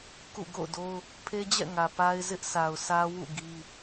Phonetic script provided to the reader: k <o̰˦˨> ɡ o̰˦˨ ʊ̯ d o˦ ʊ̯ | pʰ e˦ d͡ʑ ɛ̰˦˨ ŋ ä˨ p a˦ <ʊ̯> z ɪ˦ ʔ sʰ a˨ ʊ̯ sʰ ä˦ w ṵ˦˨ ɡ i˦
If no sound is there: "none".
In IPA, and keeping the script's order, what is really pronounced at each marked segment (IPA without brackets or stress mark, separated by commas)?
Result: ṵ˦˨, ɪ̯